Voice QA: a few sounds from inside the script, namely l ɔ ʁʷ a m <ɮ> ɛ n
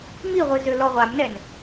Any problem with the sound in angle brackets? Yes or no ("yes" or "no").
yes